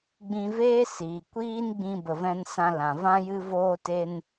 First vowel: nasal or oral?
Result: nasal